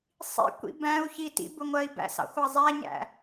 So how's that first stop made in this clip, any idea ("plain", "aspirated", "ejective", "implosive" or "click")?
plain